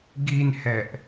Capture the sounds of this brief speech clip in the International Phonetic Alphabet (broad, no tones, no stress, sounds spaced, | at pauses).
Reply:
ɡ i n h ɛ ʔ